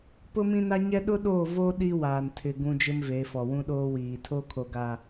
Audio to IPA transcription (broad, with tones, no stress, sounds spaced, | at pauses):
p ʊ˦ m ĩ˦ n a˦ ɲ ɛ˦ ɗ ʊ˦ ɗ oː˦˨ v o˦ ɗ i˦ w aː˨ n tʰ ɪ˨ ɡ ũ˦ d͡ʒ ɪ˦ m v e˨˦ f ɔ˨ w ũ˦ ɗ oː˦ w iː˨ tʰ o˦ kʰ o˨ ɡ a˨